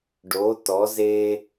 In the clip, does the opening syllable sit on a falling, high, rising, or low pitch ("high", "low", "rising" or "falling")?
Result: rising